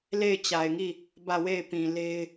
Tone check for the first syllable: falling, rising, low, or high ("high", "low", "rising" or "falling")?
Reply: falling